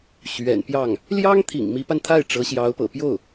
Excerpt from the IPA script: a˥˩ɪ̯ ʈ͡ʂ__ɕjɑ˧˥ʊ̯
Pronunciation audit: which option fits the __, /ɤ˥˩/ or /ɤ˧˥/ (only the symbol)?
ɤ˧˥